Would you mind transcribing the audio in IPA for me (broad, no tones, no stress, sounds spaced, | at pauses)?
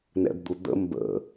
n ɛ̰ b d̪ u d̪ ə̰ m b ə̰